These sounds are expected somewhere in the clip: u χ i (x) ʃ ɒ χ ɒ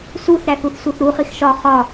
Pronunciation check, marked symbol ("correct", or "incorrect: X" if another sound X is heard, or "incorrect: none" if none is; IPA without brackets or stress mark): correct